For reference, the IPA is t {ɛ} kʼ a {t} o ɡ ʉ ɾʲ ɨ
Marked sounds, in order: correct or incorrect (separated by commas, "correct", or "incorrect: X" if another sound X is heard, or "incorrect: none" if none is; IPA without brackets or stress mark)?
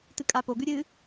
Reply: incorrect: ɨ, incorrect: p